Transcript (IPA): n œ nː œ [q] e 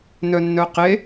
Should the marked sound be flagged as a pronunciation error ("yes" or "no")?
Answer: no